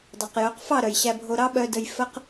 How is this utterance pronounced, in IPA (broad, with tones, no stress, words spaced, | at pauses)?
dˤɑ˨qjœ˨˦qfɑ˦˨ ɾœ˨jɕæ˧bʱo˧ɾɑ˦ ɓœ˧də˧j fə˦q